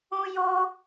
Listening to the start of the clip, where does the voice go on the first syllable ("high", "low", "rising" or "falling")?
high